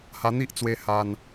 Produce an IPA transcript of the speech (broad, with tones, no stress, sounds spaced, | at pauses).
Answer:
h a˧ n̪ i˦ ʔ t͡s w e˧ h a˧ n